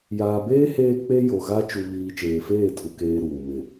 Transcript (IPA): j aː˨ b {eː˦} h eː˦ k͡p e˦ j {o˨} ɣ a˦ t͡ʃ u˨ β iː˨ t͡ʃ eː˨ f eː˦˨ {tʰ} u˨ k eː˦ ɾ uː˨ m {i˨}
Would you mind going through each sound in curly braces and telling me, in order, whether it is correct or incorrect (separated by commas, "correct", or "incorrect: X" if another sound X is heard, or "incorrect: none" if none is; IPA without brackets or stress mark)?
correct, correct, correct, incorrect: ɪ˨